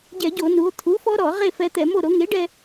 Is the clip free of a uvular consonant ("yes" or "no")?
no